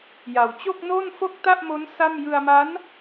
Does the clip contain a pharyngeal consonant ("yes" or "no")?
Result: no